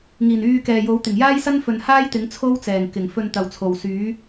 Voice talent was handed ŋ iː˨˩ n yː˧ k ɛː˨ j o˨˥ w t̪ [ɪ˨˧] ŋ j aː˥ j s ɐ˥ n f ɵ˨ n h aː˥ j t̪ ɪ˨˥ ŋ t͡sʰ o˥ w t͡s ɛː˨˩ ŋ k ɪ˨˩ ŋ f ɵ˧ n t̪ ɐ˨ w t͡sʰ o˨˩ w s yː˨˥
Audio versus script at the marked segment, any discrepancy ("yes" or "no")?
yes